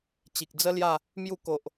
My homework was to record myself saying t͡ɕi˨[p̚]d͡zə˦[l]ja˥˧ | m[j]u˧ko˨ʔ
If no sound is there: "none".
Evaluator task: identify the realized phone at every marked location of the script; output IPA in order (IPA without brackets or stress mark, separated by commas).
k̚, l, j